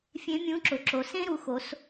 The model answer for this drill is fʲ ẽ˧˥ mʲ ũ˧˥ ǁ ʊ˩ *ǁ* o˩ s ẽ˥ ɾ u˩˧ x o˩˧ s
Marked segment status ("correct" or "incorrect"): correct